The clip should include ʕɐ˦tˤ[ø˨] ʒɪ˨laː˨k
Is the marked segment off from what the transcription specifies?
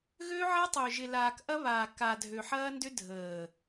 no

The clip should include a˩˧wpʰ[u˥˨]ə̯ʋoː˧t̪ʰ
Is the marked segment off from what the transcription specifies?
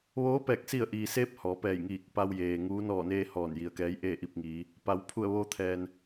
yes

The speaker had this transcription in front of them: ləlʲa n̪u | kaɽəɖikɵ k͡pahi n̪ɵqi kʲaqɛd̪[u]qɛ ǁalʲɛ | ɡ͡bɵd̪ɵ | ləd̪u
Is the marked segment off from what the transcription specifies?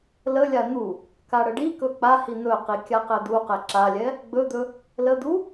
no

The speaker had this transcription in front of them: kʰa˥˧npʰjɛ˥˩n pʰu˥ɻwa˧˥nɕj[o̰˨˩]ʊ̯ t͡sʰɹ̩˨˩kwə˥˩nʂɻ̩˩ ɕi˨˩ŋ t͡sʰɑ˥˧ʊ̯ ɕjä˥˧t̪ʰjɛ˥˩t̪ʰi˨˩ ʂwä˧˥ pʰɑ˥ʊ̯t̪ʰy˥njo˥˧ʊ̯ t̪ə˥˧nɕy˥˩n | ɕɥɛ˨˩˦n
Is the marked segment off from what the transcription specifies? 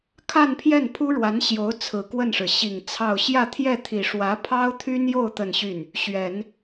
yes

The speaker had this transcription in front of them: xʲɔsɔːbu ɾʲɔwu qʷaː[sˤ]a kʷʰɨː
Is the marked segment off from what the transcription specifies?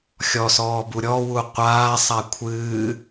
no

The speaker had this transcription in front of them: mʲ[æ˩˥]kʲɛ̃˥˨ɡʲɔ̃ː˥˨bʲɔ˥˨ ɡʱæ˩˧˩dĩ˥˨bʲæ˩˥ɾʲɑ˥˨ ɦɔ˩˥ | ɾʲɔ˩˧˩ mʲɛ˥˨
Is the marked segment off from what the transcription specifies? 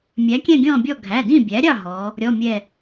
no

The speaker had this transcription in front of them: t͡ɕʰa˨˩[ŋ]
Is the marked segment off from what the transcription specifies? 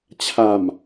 yes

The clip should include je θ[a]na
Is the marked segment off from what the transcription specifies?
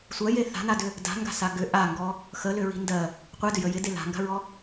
yes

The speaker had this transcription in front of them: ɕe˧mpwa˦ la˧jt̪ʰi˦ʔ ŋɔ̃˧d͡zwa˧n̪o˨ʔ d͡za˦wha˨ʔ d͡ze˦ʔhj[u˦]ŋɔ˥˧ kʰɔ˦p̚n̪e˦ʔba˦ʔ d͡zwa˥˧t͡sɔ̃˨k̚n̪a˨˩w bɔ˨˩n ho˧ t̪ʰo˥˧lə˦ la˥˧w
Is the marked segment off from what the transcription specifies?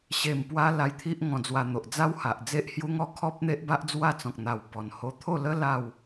no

